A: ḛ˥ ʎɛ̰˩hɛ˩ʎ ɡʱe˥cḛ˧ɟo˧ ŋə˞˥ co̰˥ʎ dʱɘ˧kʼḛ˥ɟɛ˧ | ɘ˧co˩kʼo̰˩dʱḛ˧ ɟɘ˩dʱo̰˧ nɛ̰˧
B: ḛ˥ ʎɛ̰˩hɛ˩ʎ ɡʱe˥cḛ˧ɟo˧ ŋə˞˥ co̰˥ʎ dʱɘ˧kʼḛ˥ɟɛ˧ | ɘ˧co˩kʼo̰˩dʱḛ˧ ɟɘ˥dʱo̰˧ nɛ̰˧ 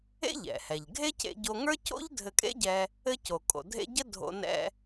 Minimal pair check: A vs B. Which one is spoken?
B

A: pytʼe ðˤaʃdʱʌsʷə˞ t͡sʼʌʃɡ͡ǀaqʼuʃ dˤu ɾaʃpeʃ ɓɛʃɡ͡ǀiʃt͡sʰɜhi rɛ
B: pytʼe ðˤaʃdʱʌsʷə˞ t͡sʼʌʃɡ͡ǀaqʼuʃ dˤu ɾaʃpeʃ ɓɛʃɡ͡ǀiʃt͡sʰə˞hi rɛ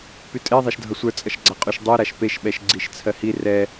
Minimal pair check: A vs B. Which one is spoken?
A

